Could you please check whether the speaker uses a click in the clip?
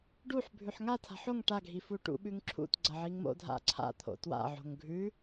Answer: yes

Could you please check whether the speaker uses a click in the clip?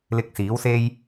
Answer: no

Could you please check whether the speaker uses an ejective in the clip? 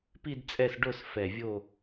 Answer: yes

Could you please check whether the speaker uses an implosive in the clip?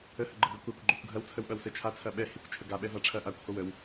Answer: yes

